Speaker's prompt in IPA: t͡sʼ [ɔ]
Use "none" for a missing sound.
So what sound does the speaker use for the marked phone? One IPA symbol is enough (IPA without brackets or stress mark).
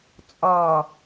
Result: ɔ